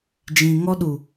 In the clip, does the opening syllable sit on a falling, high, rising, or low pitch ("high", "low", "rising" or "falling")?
low